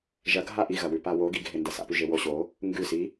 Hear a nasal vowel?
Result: no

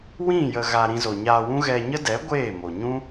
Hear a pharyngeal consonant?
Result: no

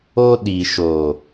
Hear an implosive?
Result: yes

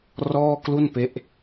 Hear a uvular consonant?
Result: no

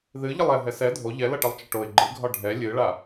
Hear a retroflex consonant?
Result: yes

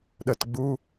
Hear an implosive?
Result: yes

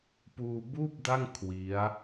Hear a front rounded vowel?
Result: no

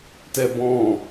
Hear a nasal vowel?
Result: yes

